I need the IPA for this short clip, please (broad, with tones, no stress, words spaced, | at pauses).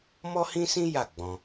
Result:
mɔ˦hĩ˦sĩ˦ ja˦˨ ɡ͡bɔ̃˧